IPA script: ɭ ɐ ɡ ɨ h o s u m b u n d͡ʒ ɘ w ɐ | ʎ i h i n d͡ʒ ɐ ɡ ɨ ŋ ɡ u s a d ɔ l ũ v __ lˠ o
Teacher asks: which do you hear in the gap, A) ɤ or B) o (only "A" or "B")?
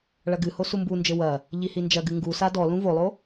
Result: B